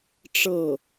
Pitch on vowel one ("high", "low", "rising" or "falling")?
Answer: falling